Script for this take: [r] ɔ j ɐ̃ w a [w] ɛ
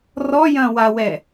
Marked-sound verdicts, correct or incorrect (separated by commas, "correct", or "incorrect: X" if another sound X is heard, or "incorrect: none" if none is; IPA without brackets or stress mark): correct, correct